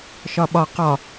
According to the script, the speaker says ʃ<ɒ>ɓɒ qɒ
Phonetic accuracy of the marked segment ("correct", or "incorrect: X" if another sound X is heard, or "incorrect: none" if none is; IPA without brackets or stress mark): correct